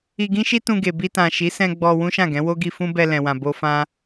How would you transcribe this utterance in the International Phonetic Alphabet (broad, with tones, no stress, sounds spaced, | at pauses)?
i˧ ɡ ĩ˦ ʃ i˦ t ũ˧ ɡ e˨ b i˧ t ã˨ ʃ i˨˦ s ɛ̃˧ ɡ͡b ɔ˧ w ũ˦ ʃ ã˦˨ ɡ ɛ̃˨˦ w o˦ ɡ i˧ f ũ˦ b ɛ˧ l ɛ̃˨ w ã˨ b o˧ f ã˦